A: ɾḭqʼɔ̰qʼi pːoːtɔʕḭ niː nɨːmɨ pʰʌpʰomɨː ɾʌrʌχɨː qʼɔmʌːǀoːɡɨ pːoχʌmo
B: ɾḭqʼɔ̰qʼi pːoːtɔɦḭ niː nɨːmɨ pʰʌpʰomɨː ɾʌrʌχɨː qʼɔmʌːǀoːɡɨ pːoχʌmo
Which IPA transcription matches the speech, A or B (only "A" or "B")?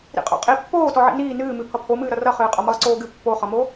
A